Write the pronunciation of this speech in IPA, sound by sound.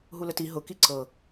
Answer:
ɦ u l ə t i ɦ ʊ k i ǀ ɤ

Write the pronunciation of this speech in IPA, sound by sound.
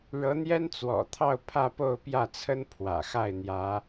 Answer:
ɻ ɤ˧˥ n̪ j ɛ˥ n t͡s w ɔ̰˨˩ t̪ʰ ɑ˥˧ ʊ̯ pʰ ä˥˧ p o˥˧ ʊ̯ p j ä˥˩ t͡sʰ ə˥ n pʰ w ä̰˨˩ x a˥˩ ɪ̯ n̪ j ä˧˥

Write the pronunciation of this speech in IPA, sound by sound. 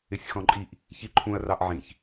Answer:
ɪ sʲ x ɔ̃ ǃʼ i ʔ | ç i ǃʰ ũ ɐ̯ r ɑ ʔ ʕ ĩ ç

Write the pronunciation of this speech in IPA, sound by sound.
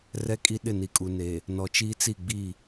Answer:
r ɛ˦ kʼ i˦ ɗ ɪ˦˨ n i˨ kʼ u˨ n e˨ | n ɔ˨ t͡ʃ iː˦ t͡s i˦˨ ɡ͡b i˦˨

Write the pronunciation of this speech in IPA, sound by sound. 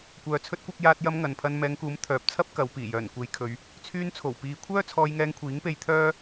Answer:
kʷ œː˨ t͡sʰ ɵ˧ t̚ kʷ ɐ˧ k̚ j aː˧ t̚ j ɐ˧ m ŋ ɐ˨ n pʰ ɐ˧ n m ɛː˨˧ ŋ k uː˨˥ m t̪ʰ œː˨ p̚ t͡sʰ ɐ˥ p̚ k ɐ˨˧ w p iː˨˩ j œː˨˩ n kʷ e˨˧ j kʰ ɵ˨˧ ɥ | t͡sʰ yː˧ n t͡sʰ o˨˩ w p iː˨˧ kʷʰ œː˥ t͡sʰ ɔː˧ j ŋ ɛː˧ ŋ kʷʰ iː˨˥ ŋ p e˧ j t̪ʰ œː˥

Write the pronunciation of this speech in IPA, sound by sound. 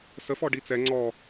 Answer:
s ə f ɔ ɖ i t͡s ɛ ŋ͡ǀ ɔ

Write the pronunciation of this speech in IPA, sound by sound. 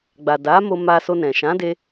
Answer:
ɡ͡b a˨ d a˨˦ m o˧ m a˧ s o˧ n ɛ̃˨ ʃ ã˨˦ d e˧

